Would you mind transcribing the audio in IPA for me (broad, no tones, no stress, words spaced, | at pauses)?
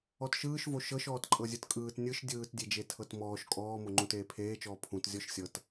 ɔtʃɯːʃvo ʃɤʃ ɔːtǃʼɤzʲɯtkʼɯːt nʲɯʃ dʲɯːtdʲed͡ʒe tʰɤtmɔːʃ kʼɔːmoŋ͡ǃũt eːpʰeːt͡ʃɔː pʰũt zʲɔʃsʲɤt